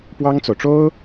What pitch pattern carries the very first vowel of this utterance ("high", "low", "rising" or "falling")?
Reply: high